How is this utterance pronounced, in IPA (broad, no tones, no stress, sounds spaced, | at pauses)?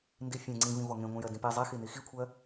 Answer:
n d i fʲ ɛ̃ ŋ͡ǀ ĩ v ĩ v ɔ ŋ ẽ ŋʷ ɛ̃ j ɜ d ĩ p i zˤ e x i n i x i kʷʰ ɜ